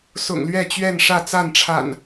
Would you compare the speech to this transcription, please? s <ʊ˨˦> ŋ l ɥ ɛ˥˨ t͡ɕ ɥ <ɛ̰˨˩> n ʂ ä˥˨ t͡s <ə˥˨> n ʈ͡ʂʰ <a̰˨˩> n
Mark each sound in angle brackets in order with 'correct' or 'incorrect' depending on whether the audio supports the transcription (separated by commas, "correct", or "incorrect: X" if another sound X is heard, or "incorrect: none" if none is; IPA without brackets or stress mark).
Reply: incorrect: ʊ̰˨˩, incorrect: ɛ˥˨, incorrect: a˥˨, correct